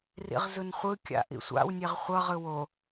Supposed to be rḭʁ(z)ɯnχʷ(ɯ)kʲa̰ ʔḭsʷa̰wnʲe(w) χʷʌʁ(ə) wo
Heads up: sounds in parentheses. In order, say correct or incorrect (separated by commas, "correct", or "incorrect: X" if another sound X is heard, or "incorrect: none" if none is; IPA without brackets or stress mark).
correct, correct, incorrect: ʁ, incorrect: ɯ